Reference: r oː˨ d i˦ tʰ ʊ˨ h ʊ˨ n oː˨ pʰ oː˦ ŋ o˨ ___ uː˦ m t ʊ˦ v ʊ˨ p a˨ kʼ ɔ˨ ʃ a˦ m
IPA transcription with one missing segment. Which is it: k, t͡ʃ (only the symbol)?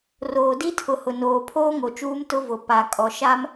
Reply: t͡ʃ